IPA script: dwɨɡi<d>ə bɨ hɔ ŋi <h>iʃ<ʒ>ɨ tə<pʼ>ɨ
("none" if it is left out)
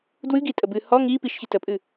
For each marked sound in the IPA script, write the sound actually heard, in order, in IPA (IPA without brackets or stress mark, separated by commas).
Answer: tʼ, p, ç, pʼ